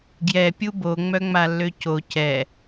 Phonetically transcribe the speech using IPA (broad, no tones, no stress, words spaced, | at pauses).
ɡjɛ pʲubo ŋ͡mœŋ͡malːøco cɛ